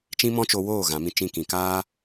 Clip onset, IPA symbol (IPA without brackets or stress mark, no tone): t͡ʃ